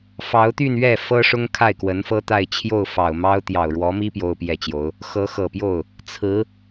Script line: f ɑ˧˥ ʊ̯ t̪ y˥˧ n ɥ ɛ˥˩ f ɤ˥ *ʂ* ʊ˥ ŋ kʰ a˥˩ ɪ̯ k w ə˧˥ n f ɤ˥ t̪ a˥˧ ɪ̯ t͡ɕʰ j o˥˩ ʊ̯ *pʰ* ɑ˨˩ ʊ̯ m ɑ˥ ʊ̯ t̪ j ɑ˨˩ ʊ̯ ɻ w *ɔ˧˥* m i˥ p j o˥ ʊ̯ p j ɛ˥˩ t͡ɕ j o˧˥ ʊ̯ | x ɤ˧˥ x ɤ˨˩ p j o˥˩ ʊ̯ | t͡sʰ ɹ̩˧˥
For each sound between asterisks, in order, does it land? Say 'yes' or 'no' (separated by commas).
yes, no, yes